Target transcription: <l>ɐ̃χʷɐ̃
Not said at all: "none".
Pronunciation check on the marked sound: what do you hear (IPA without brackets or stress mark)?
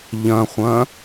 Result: ʎ